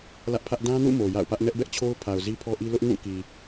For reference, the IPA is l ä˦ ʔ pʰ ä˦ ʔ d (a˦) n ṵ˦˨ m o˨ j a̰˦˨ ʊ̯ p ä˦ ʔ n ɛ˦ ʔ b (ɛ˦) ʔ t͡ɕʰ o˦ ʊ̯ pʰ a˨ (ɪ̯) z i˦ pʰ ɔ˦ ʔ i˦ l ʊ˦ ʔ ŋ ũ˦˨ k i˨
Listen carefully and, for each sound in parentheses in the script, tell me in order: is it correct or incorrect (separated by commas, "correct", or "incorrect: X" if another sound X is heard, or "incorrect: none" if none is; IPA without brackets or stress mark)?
incorrect: ã˦, correct, incorrect: ʊ̯